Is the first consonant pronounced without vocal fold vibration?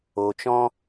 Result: yes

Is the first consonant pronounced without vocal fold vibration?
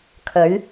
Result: yes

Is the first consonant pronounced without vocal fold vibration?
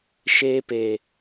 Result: yes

